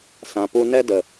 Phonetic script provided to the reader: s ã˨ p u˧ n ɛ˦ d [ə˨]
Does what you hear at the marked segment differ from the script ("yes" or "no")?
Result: no